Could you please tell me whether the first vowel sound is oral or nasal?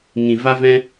nasal